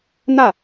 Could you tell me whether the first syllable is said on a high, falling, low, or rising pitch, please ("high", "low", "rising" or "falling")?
falling